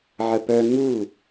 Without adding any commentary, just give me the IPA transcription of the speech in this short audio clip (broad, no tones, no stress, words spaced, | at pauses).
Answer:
ʕəpœ ŋu